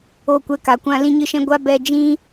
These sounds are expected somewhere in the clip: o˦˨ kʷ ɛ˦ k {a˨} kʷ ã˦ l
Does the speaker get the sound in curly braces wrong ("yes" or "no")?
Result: no